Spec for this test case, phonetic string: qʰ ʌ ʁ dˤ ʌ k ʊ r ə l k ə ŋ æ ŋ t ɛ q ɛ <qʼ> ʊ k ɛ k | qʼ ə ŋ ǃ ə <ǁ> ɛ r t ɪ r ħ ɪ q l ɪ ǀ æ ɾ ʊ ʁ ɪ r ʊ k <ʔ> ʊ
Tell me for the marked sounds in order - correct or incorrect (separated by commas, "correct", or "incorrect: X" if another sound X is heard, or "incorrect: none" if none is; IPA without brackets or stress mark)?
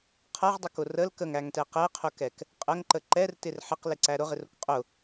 incorrect: qʰ, incorrect: ǃ, incorrect: qʼ